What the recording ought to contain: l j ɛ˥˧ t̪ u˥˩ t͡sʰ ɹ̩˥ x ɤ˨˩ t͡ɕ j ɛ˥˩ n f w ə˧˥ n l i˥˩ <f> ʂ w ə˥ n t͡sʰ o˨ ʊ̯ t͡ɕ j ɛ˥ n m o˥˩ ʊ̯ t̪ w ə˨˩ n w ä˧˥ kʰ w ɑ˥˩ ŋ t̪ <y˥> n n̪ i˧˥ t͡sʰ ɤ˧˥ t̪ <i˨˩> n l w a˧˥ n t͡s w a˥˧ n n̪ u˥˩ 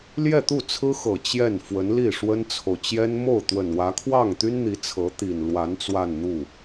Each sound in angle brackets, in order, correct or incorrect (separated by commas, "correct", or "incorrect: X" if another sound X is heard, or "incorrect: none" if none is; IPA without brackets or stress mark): incorrect: none, correct, correct